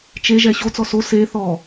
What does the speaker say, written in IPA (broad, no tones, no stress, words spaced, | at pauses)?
t͡ʃe ʒɛɕot͡sɔ so se θɔ